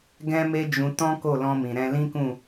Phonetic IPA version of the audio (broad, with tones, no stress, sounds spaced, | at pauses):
ɡ ɛ̃˦ m e˦ d͡ʒ ũ˧ t ɔ̃˦ k o˦˨ l ɔ̃˧ m ĩ˨ ɾ ɛ̃˧ l ĩ˦ k ũ˦˨